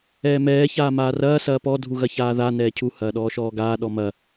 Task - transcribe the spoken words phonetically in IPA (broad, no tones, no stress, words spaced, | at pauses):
ɛːmɛː çaːmaːrɐː sɐːpɔ dʱuɣɐçaːða nɛːcʰu hɐːɗɔːʃɔːɡaː ɗɔmɐ